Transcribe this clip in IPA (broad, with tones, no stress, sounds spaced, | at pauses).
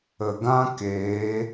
ə˨ ɡ ã˦ k eː˨˦